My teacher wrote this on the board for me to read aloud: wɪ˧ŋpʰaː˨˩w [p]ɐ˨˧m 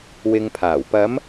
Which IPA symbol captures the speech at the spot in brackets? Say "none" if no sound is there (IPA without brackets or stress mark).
p